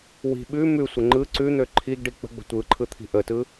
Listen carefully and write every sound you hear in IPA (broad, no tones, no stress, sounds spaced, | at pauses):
w i̤ ɓ ʉ m ʉ sʷ ə ŋ͡ǃ ɯ ǀ ʉ n̪ ø ǃʰ i ɡ ɖ i k͡p ə̤ ɡ͡b ə̤ tʷ ɯ ǃʰ ɯ t̪ʰ i̤ ʔ ə t ɯ